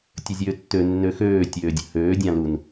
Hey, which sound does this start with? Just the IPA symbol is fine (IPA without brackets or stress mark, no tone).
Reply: tʲ